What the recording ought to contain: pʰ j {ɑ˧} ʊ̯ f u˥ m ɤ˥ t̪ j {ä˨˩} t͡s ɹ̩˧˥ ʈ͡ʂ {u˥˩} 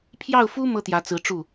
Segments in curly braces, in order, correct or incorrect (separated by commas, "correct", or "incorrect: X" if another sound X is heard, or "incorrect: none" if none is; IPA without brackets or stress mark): incorrect: ɑ˥˩, incorrect: ä˧˥, correct